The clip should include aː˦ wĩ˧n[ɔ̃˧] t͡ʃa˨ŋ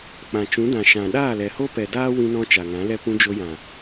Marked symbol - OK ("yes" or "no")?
yes